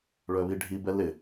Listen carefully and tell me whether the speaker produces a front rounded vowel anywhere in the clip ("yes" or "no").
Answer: yes